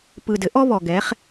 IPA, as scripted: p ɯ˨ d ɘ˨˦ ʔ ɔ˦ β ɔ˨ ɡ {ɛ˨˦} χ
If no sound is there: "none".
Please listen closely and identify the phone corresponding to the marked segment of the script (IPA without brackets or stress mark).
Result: ɛ˨˦